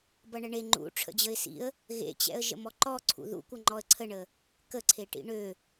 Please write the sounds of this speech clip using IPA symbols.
b ʌ ɳ ə ɳ e ŋ͡ǃ ṵ ʈ͡ʂʰ ə̰ d͡ʑ ə ɪ̯ s ḭ ə̯ | ɣ ḛ t͡ɕ ɛ̰ ə̯ ʒ ə̰ m ɔ ǃ ɔ ǀʰ ṵ ð ṵ kʷ ʌ ŋ͡ǃ ɔ ə̯ ǀʰ ə ɳ ə | k ə ǀʰ e ʈ ḭ ɳ ø

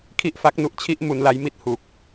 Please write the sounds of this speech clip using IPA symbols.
kʰ i˦˥ ʔ f a˦˥ k̚ n u˦˥ ʔ t͡ɕʰ i˥˩ ʔ m u˧ n l a˦˥ j m i˥˩ t̚ h u˨˩ k̚

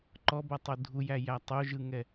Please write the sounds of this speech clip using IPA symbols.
ǃ ɔ b ʌ tˤ o dʱ u j æ j æ tˤ o ʒ ɯ ŋ ɛ

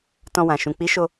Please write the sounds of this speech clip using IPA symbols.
t ɔ̃˧ w ã˨ ʃ ũ˨ k͡p i˨˦ ʃ o˧

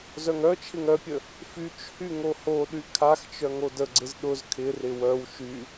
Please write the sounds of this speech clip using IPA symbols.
z œ ŋ œ t͡ʃʰ ɪ ŋ œ pʲ ə | f y t͡ʃ h y ŋ o h o ɗ y kʰ a x t͡ʃ œ ŋ o d ə ɡ͡ǀ ɪ z ɗ ʊ z kʰ ɪ r ɪ w œ w ʃ y

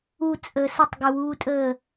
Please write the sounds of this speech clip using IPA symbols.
u t͡sʼ əː s ə tˤ ɡ ə w uː tʼ əː

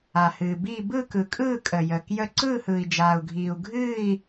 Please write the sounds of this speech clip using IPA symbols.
a˨ h ɨː˨ b iː˥˧ b ɯ˥˧ k ɯ˨ kʼ ɯː˥˧ kʼ əː˨ j əː˨ k j ə˥˧ ǀ ɯː˥˧ h ɯː˨ i̯ d͡ʒ aː˨ u̯ ɡʱ iː˨ u̯ ɡʱ ɨː˥˧ i̯

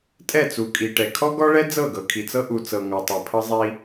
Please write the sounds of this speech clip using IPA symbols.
tʼ ɛ˦˨ t͡s u˨ kʼ i˨ ʈ ɛ˨ kʰ ɔ˦ ɡ ɔ˦ ɭ ɛ˦ d͡z ɤ˦˨ ɡ ɤ˨ kʰ i˨ t͡s ɤ˦ ʔ u˨ t͡s ɤ˨ ŋ ɔ˨ tˤ ɛ˨ pʰ ɤ˦ zˤ i˦

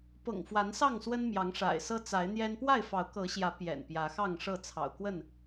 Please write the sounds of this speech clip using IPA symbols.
p ɤ̰˨˩ ŋ f w a˨˦ n s ɑ˥˨ ŋ s w ə˦ n m j ɑ˨˦ ŋ ʂ a̰˨˩ ɪ̯ s ɤ˦ t͡s a˨˦ ɪ̯ n̪ j ɛ˦ n p w a˥˨ ɪ̯ f ɑ˨˦ ʊ̯ k ɤ˨˦ ɕ j ä˨˦ p j ɛ̰˨˩ n p j ä˨˦ x ɑ˥˨ ŋ ʂ ɤ˥˨ t͡sʰ ɑ̰˨˩ ʊ̯ k w ə˥˨ n

